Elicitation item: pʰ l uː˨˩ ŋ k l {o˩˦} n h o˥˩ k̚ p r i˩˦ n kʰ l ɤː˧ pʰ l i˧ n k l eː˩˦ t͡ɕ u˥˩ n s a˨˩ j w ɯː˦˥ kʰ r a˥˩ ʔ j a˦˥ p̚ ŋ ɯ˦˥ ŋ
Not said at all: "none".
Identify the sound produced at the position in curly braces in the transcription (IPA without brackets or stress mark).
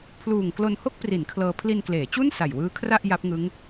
o˧